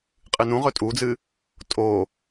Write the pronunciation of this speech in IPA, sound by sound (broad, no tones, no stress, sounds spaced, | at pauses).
qʼ ɨ n ũ ʁ ɵ tʼ u d͡z ɨ | tʼ o